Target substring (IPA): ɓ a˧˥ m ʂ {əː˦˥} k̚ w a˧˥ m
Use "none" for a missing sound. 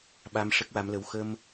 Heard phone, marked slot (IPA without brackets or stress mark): ə˦˥